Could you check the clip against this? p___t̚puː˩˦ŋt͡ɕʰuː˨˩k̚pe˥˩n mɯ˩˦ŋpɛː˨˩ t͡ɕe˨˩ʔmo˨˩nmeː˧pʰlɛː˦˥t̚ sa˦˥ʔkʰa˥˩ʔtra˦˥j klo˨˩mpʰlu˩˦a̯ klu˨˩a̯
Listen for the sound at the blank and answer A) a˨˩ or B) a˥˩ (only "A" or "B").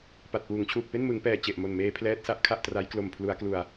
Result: A